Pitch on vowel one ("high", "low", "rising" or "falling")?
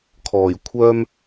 low